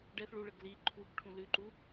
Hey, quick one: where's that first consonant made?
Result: retroflex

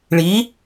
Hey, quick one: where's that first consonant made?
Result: retroflex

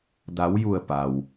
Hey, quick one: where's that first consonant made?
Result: tongue tip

